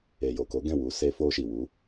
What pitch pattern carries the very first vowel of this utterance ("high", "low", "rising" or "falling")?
low